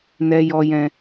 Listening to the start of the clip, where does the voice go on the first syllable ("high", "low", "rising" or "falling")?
high